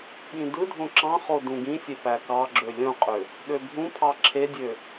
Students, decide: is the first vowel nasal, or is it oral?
nasal